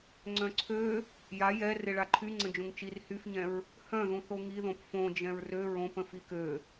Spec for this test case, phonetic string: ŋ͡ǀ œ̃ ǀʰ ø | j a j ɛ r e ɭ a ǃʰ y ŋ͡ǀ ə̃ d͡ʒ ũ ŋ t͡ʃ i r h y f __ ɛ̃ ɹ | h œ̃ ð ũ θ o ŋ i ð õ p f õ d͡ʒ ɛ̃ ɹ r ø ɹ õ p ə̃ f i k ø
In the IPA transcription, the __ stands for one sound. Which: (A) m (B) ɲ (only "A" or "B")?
B